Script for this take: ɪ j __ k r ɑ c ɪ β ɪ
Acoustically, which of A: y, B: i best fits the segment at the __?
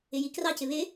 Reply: B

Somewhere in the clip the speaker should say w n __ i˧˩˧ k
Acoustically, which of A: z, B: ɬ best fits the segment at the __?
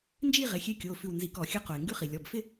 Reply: A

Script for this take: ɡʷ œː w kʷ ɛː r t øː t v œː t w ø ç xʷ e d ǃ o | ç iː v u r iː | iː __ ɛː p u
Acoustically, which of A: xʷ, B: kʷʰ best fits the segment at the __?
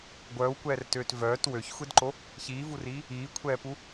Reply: B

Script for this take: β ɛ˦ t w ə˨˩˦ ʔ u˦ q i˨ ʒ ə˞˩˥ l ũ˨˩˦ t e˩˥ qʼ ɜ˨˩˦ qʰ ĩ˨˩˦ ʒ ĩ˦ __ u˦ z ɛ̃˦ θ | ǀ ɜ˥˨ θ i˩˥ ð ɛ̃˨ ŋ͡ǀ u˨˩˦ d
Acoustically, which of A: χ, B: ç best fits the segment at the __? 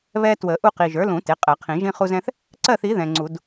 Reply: A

